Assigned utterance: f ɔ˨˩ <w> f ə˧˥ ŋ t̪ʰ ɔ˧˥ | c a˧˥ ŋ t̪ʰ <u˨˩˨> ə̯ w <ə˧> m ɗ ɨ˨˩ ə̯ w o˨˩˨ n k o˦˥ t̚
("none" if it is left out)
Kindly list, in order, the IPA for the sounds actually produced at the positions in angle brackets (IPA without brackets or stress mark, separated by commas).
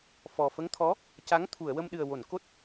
none, u˨˩˨, ə˧